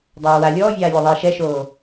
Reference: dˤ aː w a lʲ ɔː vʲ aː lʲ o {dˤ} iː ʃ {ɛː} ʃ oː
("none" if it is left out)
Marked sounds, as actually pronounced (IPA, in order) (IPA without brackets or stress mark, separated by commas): ðˤ, ɛ